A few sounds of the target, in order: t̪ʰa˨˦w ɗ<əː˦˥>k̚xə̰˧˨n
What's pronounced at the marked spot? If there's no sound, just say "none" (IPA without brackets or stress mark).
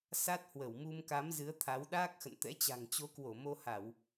aː˦˥